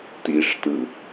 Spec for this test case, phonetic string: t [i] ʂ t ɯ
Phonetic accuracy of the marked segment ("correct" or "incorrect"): correct